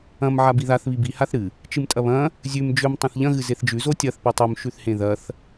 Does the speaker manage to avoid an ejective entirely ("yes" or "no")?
no